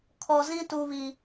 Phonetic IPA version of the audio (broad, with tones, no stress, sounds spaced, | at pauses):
kʰ ɔ˨ z ĩ˦ t u˨ β i˨